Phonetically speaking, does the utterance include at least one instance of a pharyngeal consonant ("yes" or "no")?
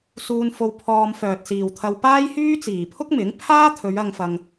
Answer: no